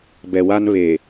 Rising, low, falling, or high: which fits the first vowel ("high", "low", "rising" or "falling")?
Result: low